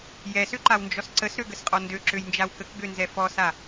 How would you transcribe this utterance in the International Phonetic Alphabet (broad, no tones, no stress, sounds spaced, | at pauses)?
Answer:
j ɛ s ø ǃ a w n d͡ʒ ɔ s ǀ ə s ɾ ø ɡ ə s qʼ ɔ n d ø ǁ ø j n d͡ʒ a w k ə k ɡ ø n z ɛ f ɔ s a